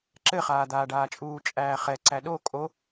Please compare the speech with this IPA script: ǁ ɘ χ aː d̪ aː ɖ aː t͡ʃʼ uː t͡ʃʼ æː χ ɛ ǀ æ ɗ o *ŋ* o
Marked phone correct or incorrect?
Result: incorrect